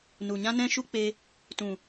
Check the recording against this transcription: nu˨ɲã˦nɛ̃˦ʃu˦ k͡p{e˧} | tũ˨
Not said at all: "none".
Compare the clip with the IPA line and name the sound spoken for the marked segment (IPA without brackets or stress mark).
e˧